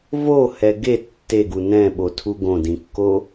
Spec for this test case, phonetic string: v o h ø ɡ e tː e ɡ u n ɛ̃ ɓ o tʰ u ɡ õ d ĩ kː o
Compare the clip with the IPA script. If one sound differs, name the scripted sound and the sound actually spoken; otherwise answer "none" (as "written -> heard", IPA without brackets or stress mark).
ø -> ɛ